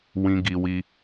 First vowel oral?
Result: no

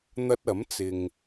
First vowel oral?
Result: yes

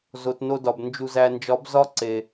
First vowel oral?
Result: yes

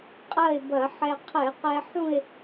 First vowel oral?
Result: yes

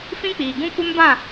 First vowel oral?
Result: no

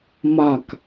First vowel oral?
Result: yes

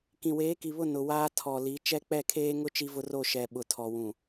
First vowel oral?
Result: no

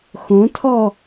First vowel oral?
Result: no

